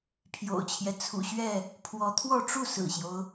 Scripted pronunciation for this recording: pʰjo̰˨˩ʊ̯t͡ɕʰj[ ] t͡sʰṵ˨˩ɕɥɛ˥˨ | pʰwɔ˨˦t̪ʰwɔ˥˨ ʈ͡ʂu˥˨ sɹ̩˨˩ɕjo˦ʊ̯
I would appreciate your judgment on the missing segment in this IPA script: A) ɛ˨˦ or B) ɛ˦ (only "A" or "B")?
B